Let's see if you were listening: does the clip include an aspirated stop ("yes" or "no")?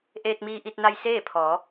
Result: yes